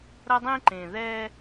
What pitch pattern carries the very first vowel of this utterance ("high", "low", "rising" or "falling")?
high